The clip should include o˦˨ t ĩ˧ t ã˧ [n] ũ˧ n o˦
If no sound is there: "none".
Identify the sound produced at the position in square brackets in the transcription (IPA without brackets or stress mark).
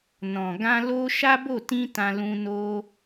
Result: l